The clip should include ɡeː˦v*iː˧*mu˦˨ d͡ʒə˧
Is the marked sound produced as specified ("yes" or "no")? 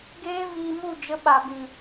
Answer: yes